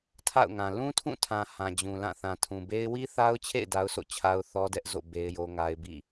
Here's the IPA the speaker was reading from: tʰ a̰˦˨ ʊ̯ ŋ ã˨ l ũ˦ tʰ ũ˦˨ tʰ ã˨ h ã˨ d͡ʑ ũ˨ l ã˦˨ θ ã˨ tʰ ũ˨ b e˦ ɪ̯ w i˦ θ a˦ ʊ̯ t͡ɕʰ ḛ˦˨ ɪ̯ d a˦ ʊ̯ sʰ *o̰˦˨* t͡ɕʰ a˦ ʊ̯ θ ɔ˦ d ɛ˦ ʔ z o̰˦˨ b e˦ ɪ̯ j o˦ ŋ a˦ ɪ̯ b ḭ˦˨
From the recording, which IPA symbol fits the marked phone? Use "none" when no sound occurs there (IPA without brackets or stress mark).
o̰˦˨